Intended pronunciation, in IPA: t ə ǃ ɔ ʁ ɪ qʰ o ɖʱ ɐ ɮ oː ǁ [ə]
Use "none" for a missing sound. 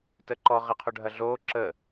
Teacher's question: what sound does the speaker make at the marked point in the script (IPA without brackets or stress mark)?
ə